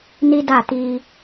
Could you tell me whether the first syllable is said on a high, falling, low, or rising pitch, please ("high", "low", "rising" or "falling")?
high